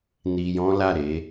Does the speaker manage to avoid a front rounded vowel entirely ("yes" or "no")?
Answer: yes